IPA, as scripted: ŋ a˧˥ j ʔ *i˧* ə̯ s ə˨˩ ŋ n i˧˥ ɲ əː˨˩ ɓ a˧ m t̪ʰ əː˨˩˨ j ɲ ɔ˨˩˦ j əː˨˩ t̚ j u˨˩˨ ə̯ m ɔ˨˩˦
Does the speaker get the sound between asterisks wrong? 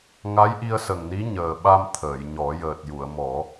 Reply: no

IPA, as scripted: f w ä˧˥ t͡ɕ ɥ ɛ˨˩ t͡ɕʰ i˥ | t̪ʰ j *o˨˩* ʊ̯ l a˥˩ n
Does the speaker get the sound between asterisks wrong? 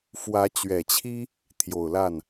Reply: no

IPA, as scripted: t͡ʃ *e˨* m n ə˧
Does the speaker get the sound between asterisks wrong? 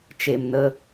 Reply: no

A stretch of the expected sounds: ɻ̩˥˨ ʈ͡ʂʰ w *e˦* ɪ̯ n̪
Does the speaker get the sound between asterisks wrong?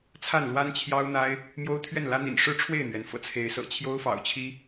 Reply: yes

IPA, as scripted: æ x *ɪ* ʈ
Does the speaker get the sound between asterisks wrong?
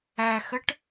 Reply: yes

